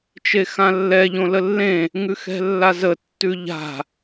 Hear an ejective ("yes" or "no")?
no